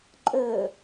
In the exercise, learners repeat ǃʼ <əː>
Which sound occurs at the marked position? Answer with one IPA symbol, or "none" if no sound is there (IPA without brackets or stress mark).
əː